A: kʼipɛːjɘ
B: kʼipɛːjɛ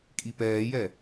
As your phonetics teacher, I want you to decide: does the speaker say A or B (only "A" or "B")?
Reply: B